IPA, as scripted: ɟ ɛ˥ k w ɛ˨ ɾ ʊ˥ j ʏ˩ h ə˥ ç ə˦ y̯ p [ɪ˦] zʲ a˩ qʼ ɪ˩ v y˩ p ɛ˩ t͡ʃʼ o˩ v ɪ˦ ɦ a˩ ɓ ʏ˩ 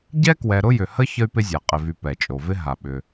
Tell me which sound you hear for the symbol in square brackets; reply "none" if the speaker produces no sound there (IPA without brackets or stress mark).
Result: ɪ˦